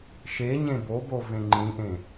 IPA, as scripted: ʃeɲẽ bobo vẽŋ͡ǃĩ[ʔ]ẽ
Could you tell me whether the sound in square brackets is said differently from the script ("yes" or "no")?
no